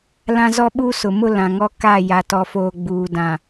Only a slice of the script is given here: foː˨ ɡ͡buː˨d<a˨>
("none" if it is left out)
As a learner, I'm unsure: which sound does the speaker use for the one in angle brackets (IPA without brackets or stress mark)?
ã˨